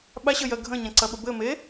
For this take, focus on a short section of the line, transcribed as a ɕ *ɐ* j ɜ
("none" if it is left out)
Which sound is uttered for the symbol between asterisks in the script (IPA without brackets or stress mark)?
ə